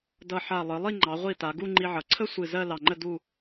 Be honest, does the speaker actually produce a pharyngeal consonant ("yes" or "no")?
yes